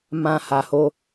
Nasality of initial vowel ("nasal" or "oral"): nasal